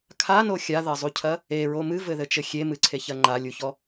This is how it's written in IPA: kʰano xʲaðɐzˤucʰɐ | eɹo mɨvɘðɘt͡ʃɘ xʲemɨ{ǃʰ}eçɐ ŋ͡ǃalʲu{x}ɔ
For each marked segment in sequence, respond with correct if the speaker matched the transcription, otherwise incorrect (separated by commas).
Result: incorrect, incorrect